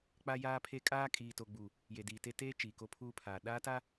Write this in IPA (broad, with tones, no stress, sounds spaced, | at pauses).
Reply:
k͡p a˦ j aː˦ pʰ e˦ kʼ aː˦ kʼ iː˨ t o˨ ɡ͡b u˨ | j e˨ d iː˨ t e˦ t eː˦ t͡ʃ iː˨ k o˦ pʰ uː˦ pʰ aː˨ ɗ aː˦ t a˦